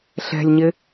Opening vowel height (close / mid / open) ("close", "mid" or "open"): mid